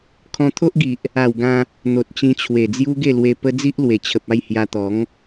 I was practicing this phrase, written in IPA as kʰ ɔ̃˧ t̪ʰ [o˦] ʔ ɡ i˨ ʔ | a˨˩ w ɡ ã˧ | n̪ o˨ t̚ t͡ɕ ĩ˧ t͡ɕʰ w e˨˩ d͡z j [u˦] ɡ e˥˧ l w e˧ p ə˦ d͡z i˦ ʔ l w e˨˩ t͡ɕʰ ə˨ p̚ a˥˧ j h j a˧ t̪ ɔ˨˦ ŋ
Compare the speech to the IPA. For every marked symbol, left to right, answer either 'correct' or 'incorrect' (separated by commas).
correct, correct